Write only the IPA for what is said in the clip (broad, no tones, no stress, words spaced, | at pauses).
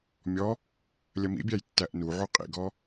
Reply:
mʲɔ | lʲɐmḭbʲæj tːæʔnuʕu qʼḭɡɔ